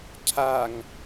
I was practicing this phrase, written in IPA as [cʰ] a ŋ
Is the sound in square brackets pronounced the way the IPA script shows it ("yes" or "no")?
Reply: yes